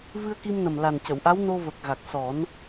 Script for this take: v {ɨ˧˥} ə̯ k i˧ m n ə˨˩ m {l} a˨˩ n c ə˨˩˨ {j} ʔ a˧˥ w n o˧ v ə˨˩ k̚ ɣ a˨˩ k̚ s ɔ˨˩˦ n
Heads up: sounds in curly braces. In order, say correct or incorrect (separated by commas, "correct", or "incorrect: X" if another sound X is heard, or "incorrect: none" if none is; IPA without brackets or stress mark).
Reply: incorrect: ɨ˧, correct, incorrect: w